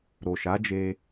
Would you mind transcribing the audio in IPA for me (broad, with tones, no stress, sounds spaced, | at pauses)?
ɾ o˨ ʃ a˨˦ d͡ʒ e˧